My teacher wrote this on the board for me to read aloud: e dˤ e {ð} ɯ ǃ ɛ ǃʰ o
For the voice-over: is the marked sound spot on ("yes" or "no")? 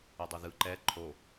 yes